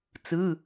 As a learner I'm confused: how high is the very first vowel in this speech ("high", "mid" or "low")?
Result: high